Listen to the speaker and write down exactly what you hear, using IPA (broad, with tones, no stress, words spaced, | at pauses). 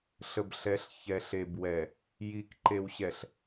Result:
ɬə˨bɬɛ˨˦ɬ çɛ˨ɬe˨bwɛ˨ | ji˨k ǃe˨wɕɛ˨ɬ